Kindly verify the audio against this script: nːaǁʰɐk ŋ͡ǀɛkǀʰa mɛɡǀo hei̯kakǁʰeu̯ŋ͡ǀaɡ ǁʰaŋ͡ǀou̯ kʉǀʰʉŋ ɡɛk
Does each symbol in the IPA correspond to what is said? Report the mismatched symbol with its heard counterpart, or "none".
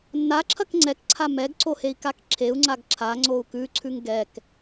none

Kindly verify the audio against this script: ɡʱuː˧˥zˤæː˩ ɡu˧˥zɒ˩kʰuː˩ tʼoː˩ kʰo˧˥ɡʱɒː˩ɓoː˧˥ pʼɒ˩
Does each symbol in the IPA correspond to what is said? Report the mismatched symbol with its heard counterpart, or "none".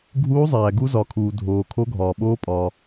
tʼ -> dʱ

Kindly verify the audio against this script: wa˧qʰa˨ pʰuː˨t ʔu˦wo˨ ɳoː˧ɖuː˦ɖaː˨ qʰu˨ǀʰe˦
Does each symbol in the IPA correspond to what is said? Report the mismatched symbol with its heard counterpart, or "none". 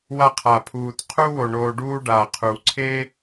ʔ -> qʰ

